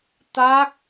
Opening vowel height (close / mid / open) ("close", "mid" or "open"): open